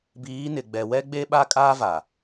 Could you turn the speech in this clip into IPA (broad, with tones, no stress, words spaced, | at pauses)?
biː˨˦nɪ˨ɡ͡bɛ˨ wɛ˦ɡ͡be˦ɓa˦ kʼaː˦va˨